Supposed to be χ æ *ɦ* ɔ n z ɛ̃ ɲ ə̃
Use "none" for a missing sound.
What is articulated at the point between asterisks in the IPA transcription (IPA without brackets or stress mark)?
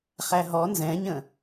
ɦ